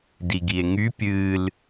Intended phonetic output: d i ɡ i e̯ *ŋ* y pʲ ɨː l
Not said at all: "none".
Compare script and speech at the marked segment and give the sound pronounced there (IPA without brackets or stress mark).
ŋ